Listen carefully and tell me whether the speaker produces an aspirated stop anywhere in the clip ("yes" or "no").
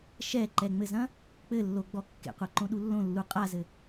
no